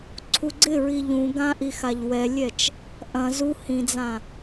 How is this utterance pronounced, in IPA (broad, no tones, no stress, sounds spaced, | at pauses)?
ǀʰ u ɡ͡ǀ ɪ ɹ i ʎ ũ ɡ ã ʔ i x a ʎ w ɛ lʲ ɛ t͡ʃ | ʔ ɐ̃ z u h ĩ d͡z ã